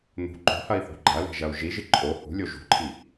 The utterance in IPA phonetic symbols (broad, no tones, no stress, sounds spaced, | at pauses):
n̪ ṳ ǃ o̤ h ɐ i̯ θ ṳ ɡ͡ǃ ɐ l e̤ ʒ ɐ u̯ ʒ i ʒ ɨ ǃʼ o h ṳ lʲ o ʒ ṳ ǃʰ i